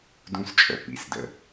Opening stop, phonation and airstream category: plain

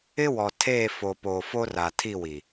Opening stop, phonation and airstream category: aspirated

